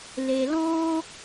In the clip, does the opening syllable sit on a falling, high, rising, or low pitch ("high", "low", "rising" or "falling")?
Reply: low